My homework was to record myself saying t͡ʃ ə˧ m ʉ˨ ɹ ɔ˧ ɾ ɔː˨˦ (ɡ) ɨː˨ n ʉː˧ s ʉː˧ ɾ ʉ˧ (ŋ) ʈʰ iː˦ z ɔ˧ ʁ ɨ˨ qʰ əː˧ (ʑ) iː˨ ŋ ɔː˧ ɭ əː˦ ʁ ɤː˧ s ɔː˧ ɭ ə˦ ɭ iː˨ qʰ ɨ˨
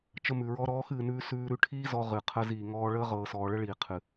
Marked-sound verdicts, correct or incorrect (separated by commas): incorrect, incorrect, incorrect